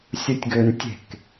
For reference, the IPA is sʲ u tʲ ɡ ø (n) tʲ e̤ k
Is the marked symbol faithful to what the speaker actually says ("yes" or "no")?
yes